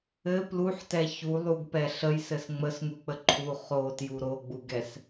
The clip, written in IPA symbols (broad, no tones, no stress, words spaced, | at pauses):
ɘ pluħtɛ çulˠuɡpɛ ɬəjsɘs ŋ͡məsŋuk͡pə ǃʰu χotju ɾoɡ͡buɡɛs